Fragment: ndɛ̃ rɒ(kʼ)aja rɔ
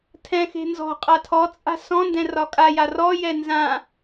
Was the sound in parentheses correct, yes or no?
yes